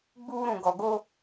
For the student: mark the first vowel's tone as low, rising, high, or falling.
high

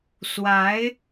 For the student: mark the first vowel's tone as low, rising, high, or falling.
rising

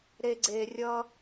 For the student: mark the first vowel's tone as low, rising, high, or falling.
low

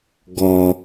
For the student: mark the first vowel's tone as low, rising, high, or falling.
low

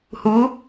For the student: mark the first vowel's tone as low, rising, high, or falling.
rising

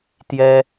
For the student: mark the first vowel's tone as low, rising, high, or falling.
high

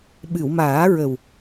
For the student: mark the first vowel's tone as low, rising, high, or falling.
low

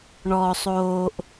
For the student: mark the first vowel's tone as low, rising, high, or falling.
low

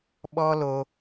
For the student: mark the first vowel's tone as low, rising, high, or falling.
high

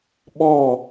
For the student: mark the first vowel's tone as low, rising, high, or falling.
falling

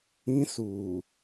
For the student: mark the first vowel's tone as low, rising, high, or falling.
high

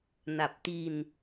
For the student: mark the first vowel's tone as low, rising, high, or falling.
low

